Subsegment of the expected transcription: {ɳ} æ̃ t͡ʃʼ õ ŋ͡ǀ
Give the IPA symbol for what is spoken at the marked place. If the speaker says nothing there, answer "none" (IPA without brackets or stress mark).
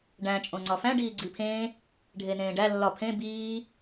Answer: ɖ